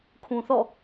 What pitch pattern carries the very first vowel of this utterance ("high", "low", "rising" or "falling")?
low